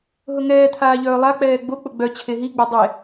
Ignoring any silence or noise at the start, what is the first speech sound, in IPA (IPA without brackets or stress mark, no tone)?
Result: ɦ